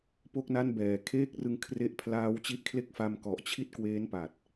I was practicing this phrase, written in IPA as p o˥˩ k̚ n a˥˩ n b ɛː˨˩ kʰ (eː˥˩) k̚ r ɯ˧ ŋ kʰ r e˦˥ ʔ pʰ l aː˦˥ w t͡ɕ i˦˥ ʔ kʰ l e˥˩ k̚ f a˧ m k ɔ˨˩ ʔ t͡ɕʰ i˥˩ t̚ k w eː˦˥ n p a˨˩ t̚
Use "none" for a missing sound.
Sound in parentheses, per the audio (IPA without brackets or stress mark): eː˥˩